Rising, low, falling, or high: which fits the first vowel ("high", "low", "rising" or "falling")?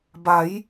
rising